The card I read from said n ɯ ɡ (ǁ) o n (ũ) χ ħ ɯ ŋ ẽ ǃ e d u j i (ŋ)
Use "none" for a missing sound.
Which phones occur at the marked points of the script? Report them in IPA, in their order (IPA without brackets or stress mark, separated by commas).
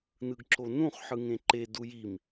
ǁ, ũ, m